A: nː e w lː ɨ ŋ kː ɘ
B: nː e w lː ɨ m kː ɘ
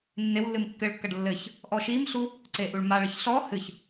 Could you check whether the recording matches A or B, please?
B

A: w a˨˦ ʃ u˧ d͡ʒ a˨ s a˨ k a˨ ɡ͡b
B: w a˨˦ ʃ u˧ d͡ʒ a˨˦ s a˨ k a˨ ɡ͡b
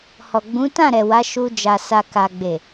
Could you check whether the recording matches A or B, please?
A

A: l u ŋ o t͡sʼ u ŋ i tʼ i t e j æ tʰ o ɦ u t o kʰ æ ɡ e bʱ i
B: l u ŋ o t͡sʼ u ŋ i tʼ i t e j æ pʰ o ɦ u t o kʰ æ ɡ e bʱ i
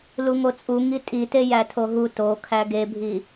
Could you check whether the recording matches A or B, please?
A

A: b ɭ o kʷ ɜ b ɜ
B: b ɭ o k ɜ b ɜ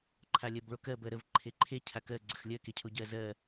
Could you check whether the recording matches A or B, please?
B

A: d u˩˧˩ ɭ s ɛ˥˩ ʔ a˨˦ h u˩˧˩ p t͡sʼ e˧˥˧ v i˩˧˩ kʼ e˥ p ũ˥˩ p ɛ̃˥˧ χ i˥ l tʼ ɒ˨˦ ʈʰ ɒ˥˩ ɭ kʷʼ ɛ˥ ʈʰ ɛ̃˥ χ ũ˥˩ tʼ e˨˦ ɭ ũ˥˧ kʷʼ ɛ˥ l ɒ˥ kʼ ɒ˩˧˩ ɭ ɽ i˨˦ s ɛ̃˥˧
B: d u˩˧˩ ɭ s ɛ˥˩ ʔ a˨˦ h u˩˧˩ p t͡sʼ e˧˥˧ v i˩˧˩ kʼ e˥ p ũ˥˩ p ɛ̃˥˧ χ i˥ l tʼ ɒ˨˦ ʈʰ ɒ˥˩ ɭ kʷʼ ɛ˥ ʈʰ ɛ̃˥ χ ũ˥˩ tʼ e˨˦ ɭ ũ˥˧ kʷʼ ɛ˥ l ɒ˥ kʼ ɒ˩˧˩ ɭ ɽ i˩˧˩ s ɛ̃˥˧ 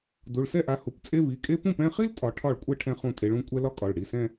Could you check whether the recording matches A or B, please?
B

